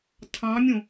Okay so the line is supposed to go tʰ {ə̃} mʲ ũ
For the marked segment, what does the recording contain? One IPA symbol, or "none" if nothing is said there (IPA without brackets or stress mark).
ɑ̃